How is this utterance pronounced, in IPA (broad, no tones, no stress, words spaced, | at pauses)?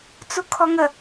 t͡sukʰɔŋə